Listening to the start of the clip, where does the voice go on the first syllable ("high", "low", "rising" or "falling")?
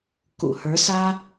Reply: low